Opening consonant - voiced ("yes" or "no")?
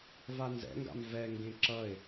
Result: yes